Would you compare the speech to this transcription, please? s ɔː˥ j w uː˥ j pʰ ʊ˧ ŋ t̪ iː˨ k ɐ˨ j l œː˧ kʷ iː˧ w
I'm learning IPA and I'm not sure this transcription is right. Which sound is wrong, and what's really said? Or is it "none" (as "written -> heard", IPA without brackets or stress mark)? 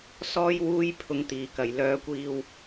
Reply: none